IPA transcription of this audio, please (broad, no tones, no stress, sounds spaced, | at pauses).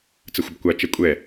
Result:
t͡s ə xʷ ə b kʷ a t͡ʃ ɛ kʷʼ ɛ